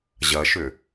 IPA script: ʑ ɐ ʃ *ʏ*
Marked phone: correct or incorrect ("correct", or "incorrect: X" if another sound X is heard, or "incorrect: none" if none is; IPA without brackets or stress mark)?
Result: correct